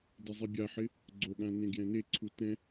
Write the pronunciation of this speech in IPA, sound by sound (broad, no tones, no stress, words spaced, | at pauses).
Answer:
dɪzˤibʲaħɪ | ɡ͡ǀoɠã nẽɡjɛ̃neǀʰu tɛ̃